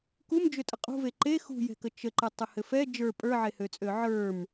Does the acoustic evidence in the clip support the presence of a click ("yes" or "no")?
yes